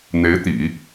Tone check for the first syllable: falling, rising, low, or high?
rising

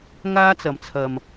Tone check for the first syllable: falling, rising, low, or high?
high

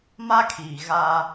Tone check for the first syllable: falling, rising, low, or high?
high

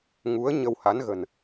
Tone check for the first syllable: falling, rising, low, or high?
rising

